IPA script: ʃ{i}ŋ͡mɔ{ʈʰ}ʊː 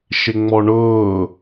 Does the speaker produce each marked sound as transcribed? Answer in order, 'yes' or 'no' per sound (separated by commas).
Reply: no, no